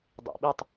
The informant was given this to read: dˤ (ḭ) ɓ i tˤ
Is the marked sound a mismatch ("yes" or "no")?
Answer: no